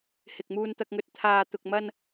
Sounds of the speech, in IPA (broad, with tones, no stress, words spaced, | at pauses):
hɪ˨k̚muː˧nt̪ɐ˧k̚ŋɵ˧t̚ t̪ʰaː˨t̪ʊ˨k̚mɐ˧n